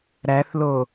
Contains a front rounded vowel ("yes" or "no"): no